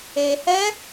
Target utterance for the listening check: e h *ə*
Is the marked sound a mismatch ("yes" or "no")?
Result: yes